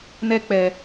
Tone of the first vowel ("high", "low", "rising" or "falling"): high